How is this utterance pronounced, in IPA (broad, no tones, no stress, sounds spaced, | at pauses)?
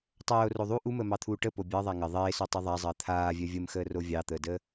tˤ œː o̯ r o ðˤ u ʔ u m əː m ɑ t̪ʰ uː ʈ ə p o bʲ ɑ ðˤ a ŋ ə ðˤ eː s o tˤ e ðˤ a zˤ əː t̪ʰ aː vʲ œ vʲ ə m x əː r o vʲ ɑ t̪ əː d əː